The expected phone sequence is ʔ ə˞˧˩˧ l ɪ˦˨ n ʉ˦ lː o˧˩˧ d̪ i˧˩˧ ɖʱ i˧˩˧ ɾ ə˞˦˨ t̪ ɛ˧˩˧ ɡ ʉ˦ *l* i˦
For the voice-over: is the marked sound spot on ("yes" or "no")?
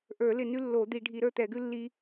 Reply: no